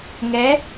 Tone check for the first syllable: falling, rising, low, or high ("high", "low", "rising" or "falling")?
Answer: rising